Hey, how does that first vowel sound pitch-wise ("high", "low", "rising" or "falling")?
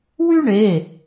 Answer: high